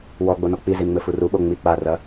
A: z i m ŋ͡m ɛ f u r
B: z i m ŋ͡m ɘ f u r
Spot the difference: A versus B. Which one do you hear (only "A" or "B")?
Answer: B